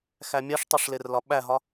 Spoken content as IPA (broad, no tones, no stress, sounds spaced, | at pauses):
x æ mʲ æ ʂ tˤ u ʂ l e r l ɒ ɓ æ ɦ ɒ